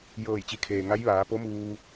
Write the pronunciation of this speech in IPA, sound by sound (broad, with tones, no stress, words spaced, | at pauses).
jɤː˧˩jt͡ɕi˩˧kʰeː˩ŋa˧˥j ʋaː˩˧po˧˥muː˧